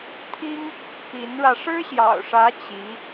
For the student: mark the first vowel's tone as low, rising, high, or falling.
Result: high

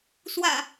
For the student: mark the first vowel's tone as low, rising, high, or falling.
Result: low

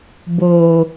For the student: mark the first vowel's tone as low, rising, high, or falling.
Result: low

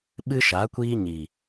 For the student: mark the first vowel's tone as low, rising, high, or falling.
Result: high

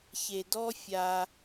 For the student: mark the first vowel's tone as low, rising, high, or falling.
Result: low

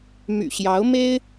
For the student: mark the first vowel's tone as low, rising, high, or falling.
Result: low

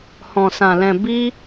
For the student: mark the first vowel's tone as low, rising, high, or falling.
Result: low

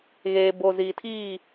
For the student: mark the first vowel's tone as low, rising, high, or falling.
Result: low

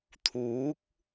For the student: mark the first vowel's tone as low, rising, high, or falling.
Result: rising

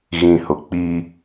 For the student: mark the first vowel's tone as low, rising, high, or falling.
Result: low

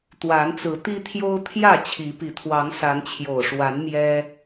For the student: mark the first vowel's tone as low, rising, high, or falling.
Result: rising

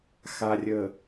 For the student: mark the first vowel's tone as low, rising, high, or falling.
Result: low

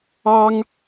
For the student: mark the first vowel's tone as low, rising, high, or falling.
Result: high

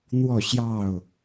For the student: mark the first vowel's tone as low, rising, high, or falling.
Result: falling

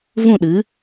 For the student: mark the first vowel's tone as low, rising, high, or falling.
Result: falling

